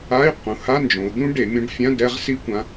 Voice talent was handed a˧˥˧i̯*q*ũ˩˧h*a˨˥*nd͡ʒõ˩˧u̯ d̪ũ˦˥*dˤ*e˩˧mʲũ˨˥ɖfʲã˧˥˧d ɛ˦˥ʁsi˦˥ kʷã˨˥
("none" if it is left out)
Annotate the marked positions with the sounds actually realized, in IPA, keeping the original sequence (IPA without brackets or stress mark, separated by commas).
q, a˧˥˧, ɖ